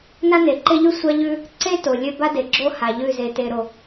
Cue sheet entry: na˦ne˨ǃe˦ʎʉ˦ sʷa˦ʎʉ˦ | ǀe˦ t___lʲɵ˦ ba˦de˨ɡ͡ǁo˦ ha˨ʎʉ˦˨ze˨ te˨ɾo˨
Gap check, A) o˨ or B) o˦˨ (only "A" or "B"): A